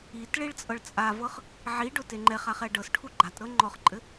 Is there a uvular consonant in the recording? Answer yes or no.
yes